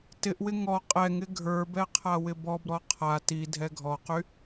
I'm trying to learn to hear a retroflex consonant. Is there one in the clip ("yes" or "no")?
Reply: no